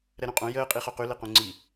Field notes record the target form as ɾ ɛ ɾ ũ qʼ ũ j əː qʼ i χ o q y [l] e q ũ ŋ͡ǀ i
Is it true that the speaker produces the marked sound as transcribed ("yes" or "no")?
yes